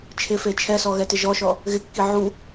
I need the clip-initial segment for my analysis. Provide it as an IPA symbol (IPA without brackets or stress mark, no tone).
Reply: t͡ʃʰ